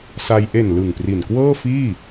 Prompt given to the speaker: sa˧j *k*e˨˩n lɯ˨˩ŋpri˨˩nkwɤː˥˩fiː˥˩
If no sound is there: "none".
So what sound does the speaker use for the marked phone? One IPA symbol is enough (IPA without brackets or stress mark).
ʔ